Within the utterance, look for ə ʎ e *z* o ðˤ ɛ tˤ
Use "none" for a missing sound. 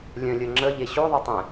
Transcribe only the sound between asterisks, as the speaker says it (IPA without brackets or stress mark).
ɕ